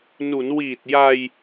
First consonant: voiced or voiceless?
voiced